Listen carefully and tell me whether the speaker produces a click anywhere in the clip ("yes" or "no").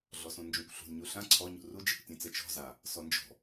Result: yes